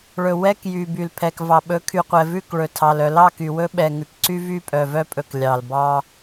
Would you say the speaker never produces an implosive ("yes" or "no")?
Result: no